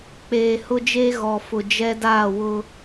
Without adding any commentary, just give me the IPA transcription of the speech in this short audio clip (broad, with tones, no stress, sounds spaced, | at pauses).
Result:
k͡p eː˨ h ʊ˦ d͡ʒ eː˦ ɣ ɔ˨ f ʊ˨ d͡ʒ ɛ˦ d aː˦˨ w ʊ˦